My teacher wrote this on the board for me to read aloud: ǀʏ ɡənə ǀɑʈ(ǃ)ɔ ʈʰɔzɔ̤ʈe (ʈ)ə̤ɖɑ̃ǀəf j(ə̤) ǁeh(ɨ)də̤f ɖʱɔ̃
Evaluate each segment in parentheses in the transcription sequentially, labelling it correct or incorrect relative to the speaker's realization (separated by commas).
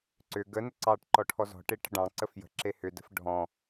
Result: correct, correct, correct, incorrect